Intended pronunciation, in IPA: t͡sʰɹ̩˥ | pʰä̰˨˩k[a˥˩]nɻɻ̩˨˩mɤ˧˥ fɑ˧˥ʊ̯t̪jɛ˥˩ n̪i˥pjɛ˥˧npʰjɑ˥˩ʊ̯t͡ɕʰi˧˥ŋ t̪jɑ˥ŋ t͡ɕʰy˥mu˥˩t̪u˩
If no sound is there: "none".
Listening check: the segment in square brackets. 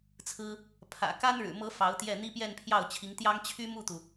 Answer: a˥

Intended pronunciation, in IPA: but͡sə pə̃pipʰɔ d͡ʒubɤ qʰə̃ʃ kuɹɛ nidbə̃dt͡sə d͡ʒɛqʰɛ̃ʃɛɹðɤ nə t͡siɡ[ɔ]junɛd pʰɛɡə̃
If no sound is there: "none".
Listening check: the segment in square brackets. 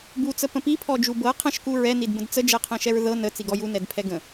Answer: ɔ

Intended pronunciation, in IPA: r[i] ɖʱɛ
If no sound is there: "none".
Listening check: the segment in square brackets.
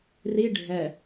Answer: i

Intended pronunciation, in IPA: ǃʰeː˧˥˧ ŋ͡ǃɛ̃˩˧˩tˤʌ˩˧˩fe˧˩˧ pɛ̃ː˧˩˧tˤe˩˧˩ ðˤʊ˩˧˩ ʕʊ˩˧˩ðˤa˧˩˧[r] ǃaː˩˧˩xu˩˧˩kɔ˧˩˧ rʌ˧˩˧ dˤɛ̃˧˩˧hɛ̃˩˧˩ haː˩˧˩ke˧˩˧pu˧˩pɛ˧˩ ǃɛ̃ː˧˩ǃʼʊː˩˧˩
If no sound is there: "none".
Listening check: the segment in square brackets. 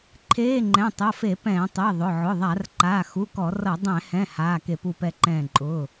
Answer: r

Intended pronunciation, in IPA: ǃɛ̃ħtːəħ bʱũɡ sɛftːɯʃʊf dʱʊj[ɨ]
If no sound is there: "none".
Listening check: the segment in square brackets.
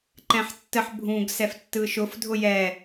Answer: ɛ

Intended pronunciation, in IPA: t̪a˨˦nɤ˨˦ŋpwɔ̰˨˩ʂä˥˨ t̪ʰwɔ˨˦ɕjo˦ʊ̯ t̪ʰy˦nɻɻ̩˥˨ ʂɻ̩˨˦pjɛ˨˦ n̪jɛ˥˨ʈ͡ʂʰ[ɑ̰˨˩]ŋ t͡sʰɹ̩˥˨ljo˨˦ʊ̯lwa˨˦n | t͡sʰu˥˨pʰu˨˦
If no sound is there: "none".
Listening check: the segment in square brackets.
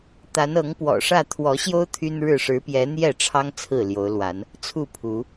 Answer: ɑ˦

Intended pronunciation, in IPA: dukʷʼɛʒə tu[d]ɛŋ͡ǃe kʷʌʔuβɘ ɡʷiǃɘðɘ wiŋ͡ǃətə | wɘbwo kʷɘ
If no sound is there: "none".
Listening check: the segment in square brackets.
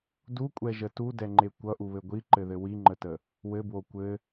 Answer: d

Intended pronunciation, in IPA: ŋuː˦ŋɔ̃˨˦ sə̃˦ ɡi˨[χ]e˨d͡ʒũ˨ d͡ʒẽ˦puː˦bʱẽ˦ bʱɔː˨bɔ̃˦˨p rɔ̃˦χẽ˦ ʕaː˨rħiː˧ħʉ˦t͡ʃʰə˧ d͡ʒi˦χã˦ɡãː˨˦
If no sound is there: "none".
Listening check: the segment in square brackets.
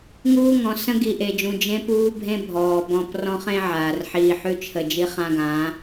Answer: ʔ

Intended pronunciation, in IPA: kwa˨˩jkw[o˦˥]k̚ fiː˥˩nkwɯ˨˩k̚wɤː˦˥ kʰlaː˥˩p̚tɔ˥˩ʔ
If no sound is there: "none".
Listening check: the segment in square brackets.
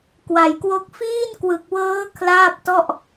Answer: o˦˥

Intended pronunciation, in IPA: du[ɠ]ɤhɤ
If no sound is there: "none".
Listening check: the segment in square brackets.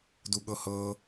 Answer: ɠ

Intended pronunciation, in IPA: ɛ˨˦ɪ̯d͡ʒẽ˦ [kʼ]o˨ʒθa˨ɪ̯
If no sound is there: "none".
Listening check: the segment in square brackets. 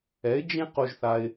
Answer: q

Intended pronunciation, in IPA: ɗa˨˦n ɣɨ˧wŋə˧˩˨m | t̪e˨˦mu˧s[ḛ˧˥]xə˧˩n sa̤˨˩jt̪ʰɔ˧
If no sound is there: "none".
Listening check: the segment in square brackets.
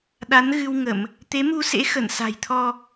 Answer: ḛ˧˥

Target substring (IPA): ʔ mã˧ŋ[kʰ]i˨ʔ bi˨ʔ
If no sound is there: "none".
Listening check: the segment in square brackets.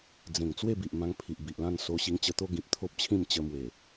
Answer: pʰ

